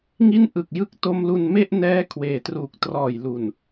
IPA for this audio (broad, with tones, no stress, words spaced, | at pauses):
ŋi˦˥n ʔɯ˨˩k̚jɯ˦˥k̚ to˧mlu˧n me˥˩ʔnɛː˦˥ kʰweː˨˩truː˨˩k̚ trɔː˨˩jlu˨˩n